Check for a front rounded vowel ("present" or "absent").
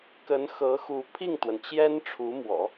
absent